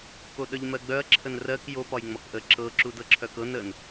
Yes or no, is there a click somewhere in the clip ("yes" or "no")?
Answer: yes